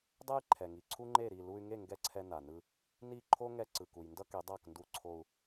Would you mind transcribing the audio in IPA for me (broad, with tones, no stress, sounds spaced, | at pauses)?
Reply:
dˤ ɛ˥ j ǃʰ ɛ˩ ŋ i˩ ǀʰ u˥ ŋ͡ǃ e˥˩ ɾ i˥˩ l u˧ y̯ ŋ e˥˩ ŋ ɡ ɛ˥˩ ǀʰ ɛ˧ n a˩ n ɯ˧ | n i˥˩ ǃʰ o˥ ŋ ɛ˧ ǀ ɯ˩ k u˩ j n d ʌ˥ k e˩˥ dˤ a˥˩ k n d u˧ ǀʰ o˧ u̯